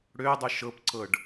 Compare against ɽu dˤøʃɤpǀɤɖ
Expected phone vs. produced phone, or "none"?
u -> ø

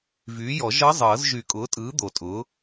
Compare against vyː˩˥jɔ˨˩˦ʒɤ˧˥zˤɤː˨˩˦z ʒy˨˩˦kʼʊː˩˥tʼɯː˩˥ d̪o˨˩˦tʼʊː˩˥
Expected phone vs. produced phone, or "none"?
none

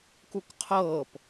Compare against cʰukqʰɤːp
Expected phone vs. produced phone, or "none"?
cʰ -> k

